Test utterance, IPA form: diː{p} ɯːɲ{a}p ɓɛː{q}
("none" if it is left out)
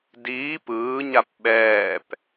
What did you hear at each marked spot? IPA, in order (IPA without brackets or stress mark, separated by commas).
p, a, p